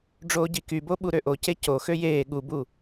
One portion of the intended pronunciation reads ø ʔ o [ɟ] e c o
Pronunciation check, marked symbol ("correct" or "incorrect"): incorrect